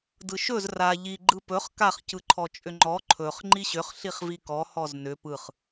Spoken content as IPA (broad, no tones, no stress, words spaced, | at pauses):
dɯʃɵz ra ʎi ɡ͡ǃɯpɵχ kaχ cɯǃʰɔt͡ʃʼʏŋ͡ǃɔ ǃʰɵχ ŋ͡ǃiɕʏχ ɬiχvikɔ hɔznʏ pɯχ